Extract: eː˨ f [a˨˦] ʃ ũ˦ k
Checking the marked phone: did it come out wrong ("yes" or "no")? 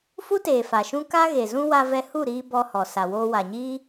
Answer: yes